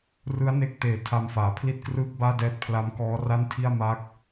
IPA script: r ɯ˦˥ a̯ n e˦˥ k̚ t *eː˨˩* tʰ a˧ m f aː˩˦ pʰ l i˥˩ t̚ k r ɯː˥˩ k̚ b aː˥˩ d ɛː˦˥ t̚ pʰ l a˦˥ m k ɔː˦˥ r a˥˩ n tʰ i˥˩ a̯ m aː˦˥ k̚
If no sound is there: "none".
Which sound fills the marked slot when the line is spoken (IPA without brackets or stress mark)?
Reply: eː˨˩